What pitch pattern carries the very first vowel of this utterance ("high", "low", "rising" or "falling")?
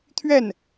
falling